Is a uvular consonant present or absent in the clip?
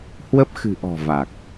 absent